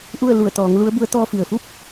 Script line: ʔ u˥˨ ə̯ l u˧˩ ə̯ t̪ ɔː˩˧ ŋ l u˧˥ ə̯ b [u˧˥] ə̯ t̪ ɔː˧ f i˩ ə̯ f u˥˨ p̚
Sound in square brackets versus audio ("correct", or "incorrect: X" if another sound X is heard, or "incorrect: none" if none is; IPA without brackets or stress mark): correct